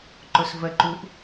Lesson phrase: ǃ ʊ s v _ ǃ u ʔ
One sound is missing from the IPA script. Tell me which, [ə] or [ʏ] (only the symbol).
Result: ə